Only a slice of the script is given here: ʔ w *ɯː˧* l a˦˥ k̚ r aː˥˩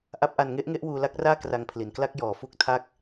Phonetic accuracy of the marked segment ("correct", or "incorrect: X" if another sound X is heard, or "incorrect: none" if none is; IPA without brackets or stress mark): incorrect: uː˧